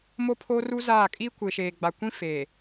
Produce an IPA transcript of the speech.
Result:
mo˦pʰoː˦ru˦ zaː˦˨ kʼi˦ kʷe˨ʃeː˨ɡ͡ba˨kʷĩ˦ feː˨

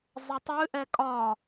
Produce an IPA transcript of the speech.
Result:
zˤətˤɨ ʔɛkʼɒ

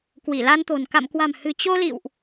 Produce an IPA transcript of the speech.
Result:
kwi˧˩la˧nt̪o̤˨˩n ka̰˧˨mkwa̤˨˩m hɨ̤˨˩t͡ɕo˧lḭ˧˨wʔ

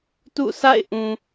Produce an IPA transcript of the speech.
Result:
tṵ˦˨sʰa̰˦˨ɪ̯ʔũ˨

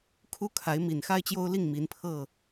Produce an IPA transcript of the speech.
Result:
kʰu˦kʰa˨˦ɪ̯ mi˨˩n xa˦ɪ̯t͡ɕjo˦ʊ̯li˥˨ŋ mi˨˦npʰɤ˥˨

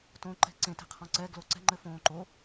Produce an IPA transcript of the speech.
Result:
tõǃɛ̤ ǀẽtɛ̤qʰɔ̃ ǀɛɡlo ǀɛ̤ŋ͡ǃɘfõː ǃo

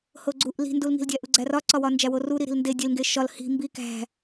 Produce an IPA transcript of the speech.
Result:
hoɡ͡ǀuʔ li̤ndulŋi̤ldʲæ ʔuɡ͡ǀærɒǀɒ wɒnd͡ʒæworu ɾiɾi̤lnde dʲelŋɡe ʃɒl hi̤ mbi kæ̤

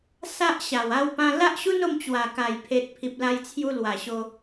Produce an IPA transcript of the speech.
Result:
sa˦ʔɕa˨˩w a˥˧wpã˦ la˦ʔɕu˦no˧m t͡ɕwa˨˩ka˨˩jpʰe˨t̚ pʰi˨p̚la˧jt͡sʰju˧ lwa˨˩ɕo˧

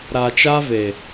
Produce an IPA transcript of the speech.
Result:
ɾa˨t͡ʃa˧ ve˨

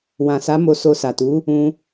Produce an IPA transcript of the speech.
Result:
wã˨sa˨˦ mo˧so˧sa˨tu˨˦ | ũ˧

